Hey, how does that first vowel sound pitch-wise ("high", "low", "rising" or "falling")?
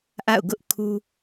falling